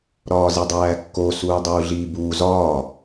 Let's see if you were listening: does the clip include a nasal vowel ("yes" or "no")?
no